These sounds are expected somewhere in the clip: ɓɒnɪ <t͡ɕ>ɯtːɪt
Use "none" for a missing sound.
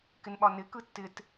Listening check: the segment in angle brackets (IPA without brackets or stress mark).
k